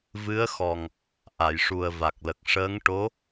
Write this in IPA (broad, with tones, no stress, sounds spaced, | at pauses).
v ɨ˧˥ ə̯ x ɔ˨˩ ŋ | ʔ a˨˩˨ j ʂ u˨˩ ə̯ v a˨˩ k̚ l ə˨˩ k̚ ʂ əː˧˥ ŋ ʈ o˧˥